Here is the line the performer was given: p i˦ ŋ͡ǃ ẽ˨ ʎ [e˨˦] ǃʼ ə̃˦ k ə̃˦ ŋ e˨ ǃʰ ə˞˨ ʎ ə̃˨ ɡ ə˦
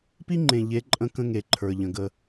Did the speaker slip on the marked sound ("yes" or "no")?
no